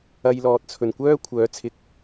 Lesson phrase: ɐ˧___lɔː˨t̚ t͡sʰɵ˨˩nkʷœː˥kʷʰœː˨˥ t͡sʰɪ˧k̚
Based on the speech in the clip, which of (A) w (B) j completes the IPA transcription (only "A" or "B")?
B